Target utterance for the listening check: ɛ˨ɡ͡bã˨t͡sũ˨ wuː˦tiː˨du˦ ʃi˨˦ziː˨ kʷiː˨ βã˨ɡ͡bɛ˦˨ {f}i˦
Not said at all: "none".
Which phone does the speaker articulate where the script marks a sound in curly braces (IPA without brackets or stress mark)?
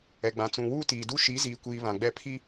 pʰ